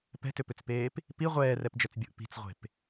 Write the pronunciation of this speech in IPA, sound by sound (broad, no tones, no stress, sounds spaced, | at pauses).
p ɛ̤ t ʏ p ʏ t͡s p eː p | p i ʁʷ ɛː r ɛ p d͡ʒ ɛ t͡s bʲ u ʔ p i̤ t͡s ʁʷ e̤ p